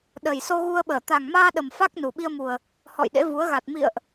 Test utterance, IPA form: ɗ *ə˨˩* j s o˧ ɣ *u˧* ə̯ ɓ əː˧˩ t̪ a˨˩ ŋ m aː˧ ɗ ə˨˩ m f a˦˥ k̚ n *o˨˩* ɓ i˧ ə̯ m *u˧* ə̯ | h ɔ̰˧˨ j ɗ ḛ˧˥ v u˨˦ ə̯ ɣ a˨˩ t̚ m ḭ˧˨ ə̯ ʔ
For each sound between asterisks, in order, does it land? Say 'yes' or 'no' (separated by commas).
yes, yes, no, no